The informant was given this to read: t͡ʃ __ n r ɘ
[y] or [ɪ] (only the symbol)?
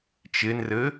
ɪ